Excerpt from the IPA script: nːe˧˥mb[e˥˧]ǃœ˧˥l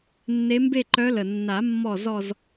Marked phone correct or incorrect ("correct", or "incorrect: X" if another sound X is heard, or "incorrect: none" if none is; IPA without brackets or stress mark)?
correct